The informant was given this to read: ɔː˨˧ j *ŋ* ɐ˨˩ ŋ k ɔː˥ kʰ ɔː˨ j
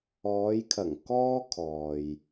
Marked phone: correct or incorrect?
incorrect